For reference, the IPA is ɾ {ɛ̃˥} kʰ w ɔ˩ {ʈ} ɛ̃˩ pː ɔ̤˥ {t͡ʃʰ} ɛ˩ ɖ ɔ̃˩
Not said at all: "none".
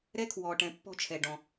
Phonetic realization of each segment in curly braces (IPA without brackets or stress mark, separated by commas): ɛ˥, ʈ, t͡ʃʰ